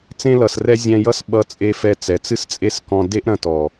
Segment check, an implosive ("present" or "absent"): present